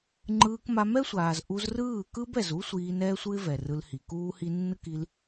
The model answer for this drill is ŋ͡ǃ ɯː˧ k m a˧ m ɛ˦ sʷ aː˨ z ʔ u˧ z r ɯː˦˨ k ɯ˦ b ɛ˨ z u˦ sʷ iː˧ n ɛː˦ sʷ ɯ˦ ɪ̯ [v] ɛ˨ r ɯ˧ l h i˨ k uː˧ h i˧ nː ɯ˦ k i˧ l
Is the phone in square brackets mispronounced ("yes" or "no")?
no